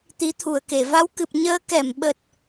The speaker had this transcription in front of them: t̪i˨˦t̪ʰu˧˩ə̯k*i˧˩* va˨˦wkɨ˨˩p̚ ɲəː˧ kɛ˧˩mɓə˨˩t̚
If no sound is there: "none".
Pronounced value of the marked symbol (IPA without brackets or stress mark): e˧˩